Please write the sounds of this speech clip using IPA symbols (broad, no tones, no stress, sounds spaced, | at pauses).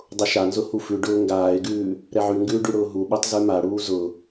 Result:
dˤ ʊ ʃ a n z ʊ h u f ʉ ɖ ʊː ŋ ɡ aː ɪ̯ ɡ ʉː | ɾ ɛ ʕ ʉ ŋ ɡ ʉː ɖ ʉ ɽ ʊː ɦ u ɓ u tˤ z ʉ m a ɽ uː z ʊ